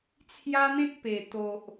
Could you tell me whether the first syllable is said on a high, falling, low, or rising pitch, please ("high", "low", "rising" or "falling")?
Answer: high